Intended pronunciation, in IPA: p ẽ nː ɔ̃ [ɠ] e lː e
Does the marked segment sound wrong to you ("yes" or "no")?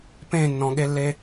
no